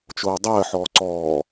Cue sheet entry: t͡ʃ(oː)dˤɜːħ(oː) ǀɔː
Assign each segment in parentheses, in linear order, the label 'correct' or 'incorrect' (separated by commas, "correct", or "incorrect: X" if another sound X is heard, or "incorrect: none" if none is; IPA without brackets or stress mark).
correct, incorrect: ɔː